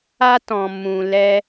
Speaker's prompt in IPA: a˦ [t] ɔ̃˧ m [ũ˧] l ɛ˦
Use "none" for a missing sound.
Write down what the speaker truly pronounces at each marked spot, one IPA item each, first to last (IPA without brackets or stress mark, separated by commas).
t, ũ˧